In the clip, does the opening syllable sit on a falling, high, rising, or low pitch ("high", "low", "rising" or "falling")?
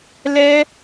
high